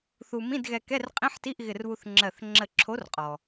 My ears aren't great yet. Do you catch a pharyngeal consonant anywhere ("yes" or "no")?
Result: yes